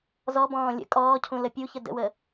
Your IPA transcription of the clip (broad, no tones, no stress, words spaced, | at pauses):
zɔbɔ̃ː lʲə̰ kʼɔːcʰũ ləpʲuçə də̰wə